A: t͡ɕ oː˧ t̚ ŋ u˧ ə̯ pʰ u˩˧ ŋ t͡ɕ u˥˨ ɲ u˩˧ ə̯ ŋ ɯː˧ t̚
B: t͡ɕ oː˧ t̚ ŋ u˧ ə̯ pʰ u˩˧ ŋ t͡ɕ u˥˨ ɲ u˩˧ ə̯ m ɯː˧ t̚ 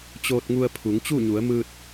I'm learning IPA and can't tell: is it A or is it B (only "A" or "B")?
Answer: B